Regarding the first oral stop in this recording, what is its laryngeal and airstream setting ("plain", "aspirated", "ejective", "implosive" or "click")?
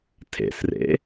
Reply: aspirated